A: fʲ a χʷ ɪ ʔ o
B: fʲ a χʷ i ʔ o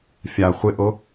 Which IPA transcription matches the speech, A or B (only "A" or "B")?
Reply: A